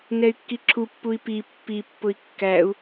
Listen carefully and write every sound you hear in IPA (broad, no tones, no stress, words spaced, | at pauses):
nɛy̯kːiǁʰupːui̯ pi pːipːʊi̯ kːæu̯